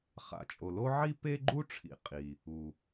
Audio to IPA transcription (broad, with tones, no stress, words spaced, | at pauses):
χa̰˩t͡ʃʼo˩lo˥ ʕi˥pe˥ɡ͡ǃu˥ʈ͡ʂʰḭ˩ qʼi˩ | u˩